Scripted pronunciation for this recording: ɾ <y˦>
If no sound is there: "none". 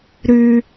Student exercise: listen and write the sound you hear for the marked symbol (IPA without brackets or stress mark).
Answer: y˦